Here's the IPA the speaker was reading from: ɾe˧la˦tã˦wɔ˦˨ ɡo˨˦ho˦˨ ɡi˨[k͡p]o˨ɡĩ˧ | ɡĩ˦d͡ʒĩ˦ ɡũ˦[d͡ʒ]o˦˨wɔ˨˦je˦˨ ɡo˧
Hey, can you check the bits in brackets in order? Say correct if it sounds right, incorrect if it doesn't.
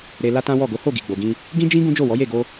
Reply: incorrect, correct

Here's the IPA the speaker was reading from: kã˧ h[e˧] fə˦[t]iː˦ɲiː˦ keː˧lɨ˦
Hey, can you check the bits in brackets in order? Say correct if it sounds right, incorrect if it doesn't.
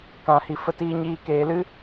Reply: incorrect, correct

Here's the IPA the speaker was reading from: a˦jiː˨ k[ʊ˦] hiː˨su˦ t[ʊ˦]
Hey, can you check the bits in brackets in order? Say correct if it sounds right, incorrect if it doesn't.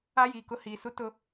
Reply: correct, correct

